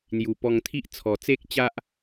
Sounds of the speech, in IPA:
n̪ju˨˩pɔ˧ŋt̪ʰi˦ʔ t͡sʰɔ˨˩t͡se˦k̚t͡ɕa˦ʔ

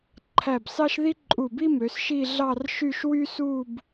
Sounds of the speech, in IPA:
ǃʰæ˧˩bsɑ˥ʃ ði˥ ǃʼu˧˩bi˥mø˩˧s ʃi˥˧ɮɑ˥˧rʃy˥˧ʃ wy˥su˥˧b

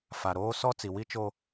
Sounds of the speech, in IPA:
fa˨ɾoː˦ sɔ˦t͡si˨wi˦t͡ʃo˦

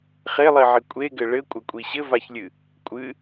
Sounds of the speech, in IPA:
χelˠiʕi kʷʼeɡɘ ɭɘkʷʼɐkʷʼi ɕɘvaçlʲɨ | kʷʼɨ

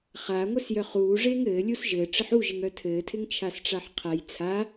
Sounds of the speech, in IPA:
χaːŋʷœsjœ χuː ʐeŋɘː lʲusʒɘː ʈ͡ʂɪħuʒɪŋ œtʰɘːtʰɪŋ t͡ʃʰasʈ͡ʂaħqʰaj t͡sʰa

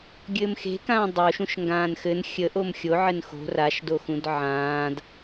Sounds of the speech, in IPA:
ɡʲɘːmxe̤kãː dˤoʃũʃ ŋɡãːnxɘn xʲəʔom xʲoʕɘn xo̤ raʃdoxũd ʕãːd

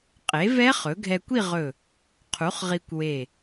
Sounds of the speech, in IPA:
qʼe˩˥vɛ˦˥ χɵ˩˥ ɡʱɛ˧kʷi˥˧ ʁɵ˧˩ | qʰu˩˥χʁi˧kʷwe˧˩

